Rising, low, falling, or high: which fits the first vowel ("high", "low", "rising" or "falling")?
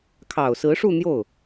low